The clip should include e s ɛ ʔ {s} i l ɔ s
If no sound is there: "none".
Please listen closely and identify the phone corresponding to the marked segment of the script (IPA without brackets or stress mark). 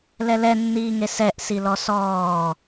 s